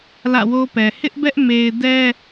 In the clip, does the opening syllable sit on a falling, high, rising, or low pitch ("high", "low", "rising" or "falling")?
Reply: falling